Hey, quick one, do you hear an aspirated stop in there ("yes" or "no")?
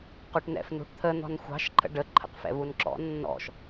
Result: yes